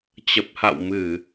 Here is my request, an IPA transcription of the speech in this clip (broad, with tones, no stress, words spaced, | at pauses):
t͡ɕə˨˩p̚ha̰˧˨wmɨ˧˩˨